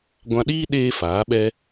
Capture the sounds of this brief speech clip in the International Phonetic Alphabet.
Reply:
ɡʷ ã˧ ɗ iː˦ ɗ eː˧ f aː˨˦ ɓ ɛ˦

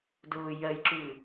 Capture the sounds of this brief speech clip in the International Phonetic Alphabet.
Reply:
d ʊː j ɜ j ǁ ʉː

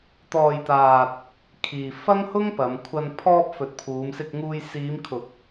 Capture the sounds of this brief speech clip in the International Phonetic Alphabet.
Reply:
t̪ ɔː˨ j t̪ aː˨ t̚ | kʰ iː˨ f ɐ˥ ŋ h ʊ˥ ŋ p ɐ˨˧ m kʷʰ ɐ˧ n pʰ ɔː˧ p̚ f ɵ˨˥ t̚ pʰ uː˨˧ m s ɪ˧ k̚ ŋ uː˧ j s iː˨˧ m kʰ ʊ˨˥ k̚

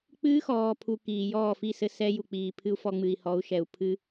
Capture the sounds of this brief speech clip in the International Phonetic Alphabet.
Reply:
k͡p ɨː˦ x ɔː˨ pʰ u˨ k iː˨ j ɔː˦˨ f i˦˨ s ɘ˦ s ɛ˦ j u˨ k͡p iː˨ pʰ ɨ˦ u̯ f ɔ˧ ŋ͡m ɨ˨ i̯ h ɔ˨˦ u̯ ʃ ɛ˨ u̯ pʰ ɨ˦

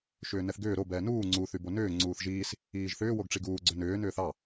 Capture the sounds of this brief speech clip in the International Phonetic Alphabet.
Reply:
ʃ ʏː n ɛ θ ɡ ʏː ɾ o b ɛː n uː ŋ͡ǀ u θ y b o n ʏː ŋ͡ǀ uː θ ʒ iː s | iː ʒ θ ʏː w o ɡ ʈ͡ʂ i ɡ uː ɡ͡ǀ ʏ n ʏː n ʏː θ ɑ

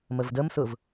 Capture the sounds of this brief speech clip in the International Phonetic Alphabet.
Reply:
m ə v d ə m s ʊ v

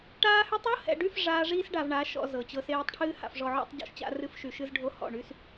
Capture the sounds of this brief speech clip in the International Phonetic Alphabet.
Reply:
ʈ aː˦ h y˦ tˤ ɤ˦ h ɛ̰˨ ɖ y˦˨ f ʐ aː˦ ʐ iː˦ s ɖ a˨ v ɳ a˨˦ ʃ ɔ̰˨ z ɤ˨ t͡ɕ ɤ˦ s eː˦ tˤ ʈʰ ɨː˦ h a̰˨ f ʐ ɔ˨ ʕ ɔ̰˦ tˤ ɟ ɔ̰˦ ʃ t͡ɕ a̰˦ r ɨ˦ f ʃ y˨ ʃ ɨ˦ z ɖʱ o˦ h ɔ̰˨ ɳ y˦ s

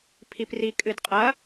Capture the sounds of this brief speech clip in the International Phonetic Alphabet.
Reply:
pʰ i p r i kʼ ɨ d qʼ ɐ

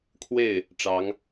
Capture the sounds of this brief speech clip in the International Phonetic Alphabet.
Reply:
kʰ w e˥˩ ɪ̯ | ʈ͡ʂ ɑ˧˥ ŋ

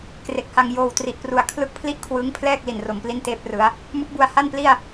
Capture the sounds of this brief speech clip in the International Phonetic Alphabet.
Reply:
k r e˨˩ k̚ h a˧ ŋ j oː˨˩ w t r i˨˩ ʔ p r u˨˩ a̯ kʰ l ɯ˦˥ k̚ pʰ l i˥˩ ʔ kʰ w ɯː˦˥ ŋ pʰ l ɛː˥˩ k̚ l i˨˩ n r o˩˦ m p l i˥˩ n t eː˥˩ p̚ r ɯ˦˥ a̯ | m ɯ˦˥ k̚ b u˧ a̯ h a˥˩ n p l i˥˩ a̯

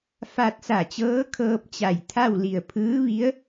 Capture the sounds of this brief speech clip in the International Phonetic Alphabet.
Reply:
f a˧ t̚ s a˧˩ t͡ɕ ɤː˧˥ kʰ ɤː˧ p̚ t͡ɕ a˧˩ j t̪ʰ a˥˨ w l i˧˩ ə̯ pʰ ɯː˧˥ ʋ i˧˥ ə̯

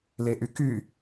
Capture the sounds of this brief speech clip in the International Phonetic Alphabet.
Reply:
l e ʔ y k y

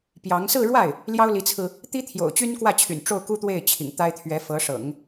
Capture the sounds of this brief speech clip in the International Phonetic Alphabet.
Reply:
p j ɑ˧˥ ŋ s ɹ̩˥˧ ɻ w a˥˩ ɪ̯ | l j ɑ˥ ʊ̯ l i˧˥ t͡sʰ ɹ̩˧ | t̪ i˥ t̪ʰ j o̰˨˩ ʊ̯ t͡ɕ y˥ n k w ä˥˩ t͡ɕʰ y̰˨˩ n ʈ͡ʂ o˥˩ ʊ̯ k u˥ t̪ w e˥˩ ɪ̯ t͡ɕʰ ḭ˨˩ ŋ t̪ a˥ ɪ̯ t̪ʰ ɥ ɛ˧˥ f ɤ˧˥ ʂ ɤ̰˨˩˦ ŋ

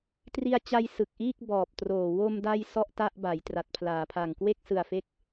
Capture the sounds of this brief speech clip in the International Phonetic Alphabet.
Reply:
t r i˧ a̯ t͡ɕ a˧ j s ɯ˨˩ k̚ ʔ iː˥˩ k̚ b ɔː˨˩ p̚ t r oː˨˩ w o˧ m d a˧ j s ɔ˥˩ ʔ t a˥˩ ʔ b a˩˦ j t r a˨˩ t̚ pʰ l aː˩˦ pʰ a˨˩ ŋ k w e˥˩ k̚ s ɯ˨˩ a̯ f e˥˩ k̚

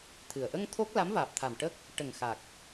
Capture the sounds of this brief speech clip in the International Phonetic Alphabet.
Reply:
t̪ʰ ɨ˨˩ ə̯ ʔ ə˧ ŋ t̪ʰ o˦˥ k̚ l a˧˥ m v aː˨˩ p̚ t̪ʰ a˨˩ m ʈ ə˦˥ k̚ | ʈ ə˨˩ ŋ x a˨˩ k̚

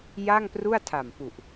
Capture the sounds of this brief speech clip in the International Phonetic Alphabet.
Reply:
j a˥˩ ŋ p r u˥˩ a̯ tʰ a˨˩ m p u˨˩ ʔ

